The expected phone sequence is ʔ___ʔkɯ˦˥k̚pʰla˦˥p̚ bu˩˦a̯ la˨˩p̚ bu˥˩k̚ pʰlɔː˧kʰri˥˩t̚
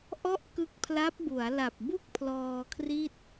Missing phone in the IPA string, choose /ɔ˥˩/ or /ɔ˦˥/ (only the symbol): ɔ˥˩